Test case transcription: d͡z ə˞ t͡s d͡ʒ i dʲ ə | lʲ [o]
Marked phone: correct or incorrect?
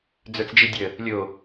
correct